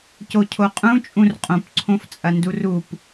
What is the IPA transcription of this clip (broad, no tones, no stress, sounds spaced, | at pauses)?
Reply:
c o cʰ o qʼ ũ t͡ʃʼ ũ r qʼ õ p ǀʰ õ f t͡sʼ ɐ n d u r u p